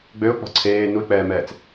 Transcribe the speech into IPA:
ɡ͡bøʊ̯ k͡pɔ̤ǀʰeː nuɪ̯k͡pɛːmɛːt͡s

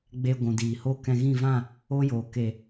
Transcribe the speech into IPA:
ɡ͡be˧ ɡʷũ˨diː˨ ho˦˨kɛ̃˧ɣĩ˦˨ vã˦˨ | o˦joː˨ ke˨

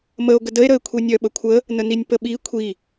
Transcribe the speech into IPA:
məo̯ɡə dəe̯ɾəe̯kʷʰenʲœ ɓəkʷʰə | nəninʲpəɓi kʷʰi

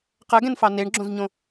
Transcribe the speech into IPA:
qɜɡɛ̃nfɑ neɳɡ͡ǁõzɲõ

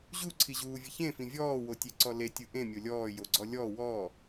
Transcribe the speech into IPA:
ʑuǀʰiʑuːvʲə çẽfĩ vʲɔːwotʲeǀɔ letʲɯ ʔẽmʲo lʲɔːjoɡ͡ǀɔ lʲɔ wɔː

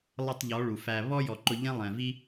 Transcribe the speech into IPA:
lˠə˦˨tˤʎɔ˨˦ ɭu˨fæ˧ βɔ˦jɔ˨ǃʊ˧ ʎɛ̃˦lˠɛ̃˨vi˦

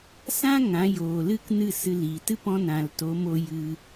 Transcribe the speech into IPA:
sã˦ ŋã˨˦joː˨lɨ˦k nɨ˦˨ sɨ˧liː˨ tɨ˦pɔ̃˧ nã˨lto˨˦mo˧ jɨ˧

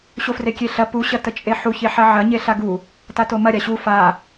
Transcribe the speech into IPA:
ɕofrekʲeɬɐ pu ɕɐtət͡ʃʼeħu çeħɐʕɐ ɲeɬaɡu | tatomɐ ɾʲaɕu fa

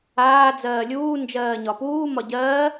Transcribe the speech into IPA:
aː d͡zɜːlʲuː nd͡ʒɜːɲɒpuː mɒɟɜː

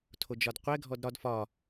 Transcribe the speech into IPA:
tʰod͡ʒɒdqʷɛ ɡʱɔdɾɒd fɒ

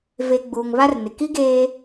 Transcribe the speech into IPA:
ve˨ ɡ͡buː˨ŋβa˦rnɪ˨ ki˦ɡeː˦

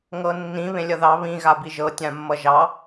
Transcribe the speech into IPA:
ŋɤnːĩ βẽlʲʌðɑ βĩ ɣabiʒɤ tʲãmːʌʒɑ

